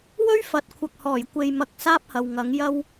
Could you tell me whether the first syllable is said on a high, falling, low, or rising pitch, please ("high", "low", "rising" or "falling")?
high